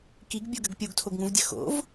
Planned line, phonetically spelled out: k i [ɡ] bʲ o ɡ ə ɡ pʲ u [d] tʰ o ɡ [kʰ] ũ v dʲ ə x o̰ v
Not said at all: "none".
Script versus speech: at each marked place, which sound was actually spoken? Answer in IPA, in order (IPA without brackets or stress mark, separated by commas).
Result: ɡ, ɡ, ŋ